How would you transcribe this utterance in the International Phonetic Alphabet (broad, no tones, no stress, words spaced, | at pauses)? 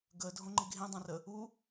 ɡə dʱõŋ͡ǃiɡʱẽdˤɛ̃ rə | u